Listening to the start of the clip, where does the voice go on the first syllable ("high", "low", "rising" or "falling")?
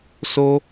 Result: high